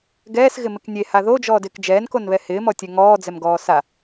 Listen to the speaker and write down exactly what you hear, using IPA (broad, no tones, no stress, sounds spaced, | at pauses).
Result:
ɡ ɛː s ɣ ɪ m ɪ k nʲ e h a ð o d͡ʒ ɔː d ɪː k d͡ʒ ɛː n k o n β ɛ h ɪː m ɔ tʲ ɛ ŋ ɔː d͡z ɛ m ɡ ɔː s a